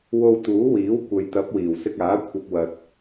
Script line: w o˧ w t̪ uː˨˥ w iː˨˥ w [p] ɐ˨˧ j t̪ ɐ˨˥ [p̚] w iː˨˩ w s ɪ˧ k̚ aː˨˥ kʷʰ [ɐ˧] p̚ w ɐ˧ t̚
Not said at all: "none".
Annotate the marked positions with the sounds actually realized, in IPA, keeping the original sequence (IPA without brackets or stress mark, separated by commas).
kʷ, p̚, ɐ˧